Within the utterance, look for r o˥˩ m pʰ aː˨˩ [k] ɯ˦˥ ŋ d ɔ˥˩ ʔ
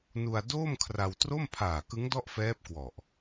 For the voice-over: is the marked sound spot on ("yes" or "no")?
yes